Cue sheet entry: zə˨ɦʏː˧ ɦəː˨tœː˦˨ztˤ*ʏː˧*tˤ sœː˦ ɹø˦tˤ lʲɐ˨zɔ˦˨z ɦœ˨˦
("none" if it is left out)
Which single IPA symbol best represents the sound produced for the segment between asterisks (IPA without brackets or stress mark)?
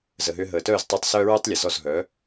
ʏː˧